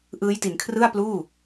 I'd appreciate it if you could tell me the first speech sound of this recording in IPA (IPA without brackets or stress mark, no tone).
ʔ